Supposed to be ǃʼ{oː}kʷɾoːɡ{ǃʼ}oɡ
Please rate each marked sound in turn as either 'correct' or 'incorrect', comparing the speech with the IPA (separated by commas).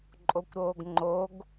incorrect, incorrect